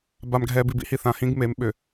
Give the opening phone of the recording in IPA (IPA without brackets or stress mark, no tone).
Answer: b